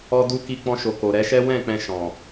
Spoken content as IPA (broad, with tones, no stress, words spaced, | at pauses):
ɔ˧du˧ ki˧k͡pɔ̃˧ʃo˨ ko˨ɾɛ˨˦ʃɛ˦ wɛ̃˦˨ k͡pɛ̃˧ʃɔ̃˨